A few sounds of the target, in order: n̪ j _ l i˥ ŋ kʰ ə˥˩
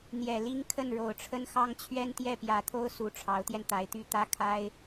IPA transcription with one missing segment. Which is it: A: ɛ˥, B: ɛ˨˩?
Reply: B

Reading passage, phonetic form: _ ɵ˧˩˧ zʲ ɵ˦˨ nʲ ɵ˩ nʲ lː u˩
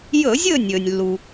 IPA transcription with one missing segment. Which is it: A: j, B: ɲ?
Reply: A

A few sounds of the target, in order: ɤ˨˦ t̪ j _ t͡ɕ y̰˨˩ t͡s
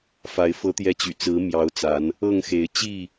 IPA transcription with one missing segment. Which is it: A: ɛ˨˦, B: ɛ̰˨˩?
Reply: A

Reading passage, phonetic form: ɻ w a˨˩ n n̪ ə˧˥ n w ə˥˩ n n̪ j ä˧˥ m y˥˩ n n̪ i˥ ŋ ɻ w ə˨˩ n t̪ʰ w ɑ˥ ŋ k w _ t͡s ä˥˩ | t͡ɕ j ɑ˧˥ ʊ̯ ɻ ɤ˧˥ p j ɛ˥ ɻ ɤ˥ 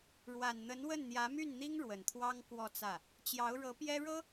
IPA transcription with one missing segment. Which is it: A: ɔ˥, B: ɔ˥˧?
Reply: B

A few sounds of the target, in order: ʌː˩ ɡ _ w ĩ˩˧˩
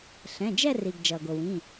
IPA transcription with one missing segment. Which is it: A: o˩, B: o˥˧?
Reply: A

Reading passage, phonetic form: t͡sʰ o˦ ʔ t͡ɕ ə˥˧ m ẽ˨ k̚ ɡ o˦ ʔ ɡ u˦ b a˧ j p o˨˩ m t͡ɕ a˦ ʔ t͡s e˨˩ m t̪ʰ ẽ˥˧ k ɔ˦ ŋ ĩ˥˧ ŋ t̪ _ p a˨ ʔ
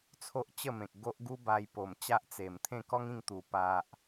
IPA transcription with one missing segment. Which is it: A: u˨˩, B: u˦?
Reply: A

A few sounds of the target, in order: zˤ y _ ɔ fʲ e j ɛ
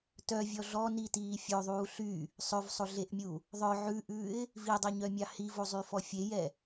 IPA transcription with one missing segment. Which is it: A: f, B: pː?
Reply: A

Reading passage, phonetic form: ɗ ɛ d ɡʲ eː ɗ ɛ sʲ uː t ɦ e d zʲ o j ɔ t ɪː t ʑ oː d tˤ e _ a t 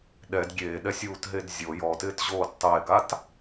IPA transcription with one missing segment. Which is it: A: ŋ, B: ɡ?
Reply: B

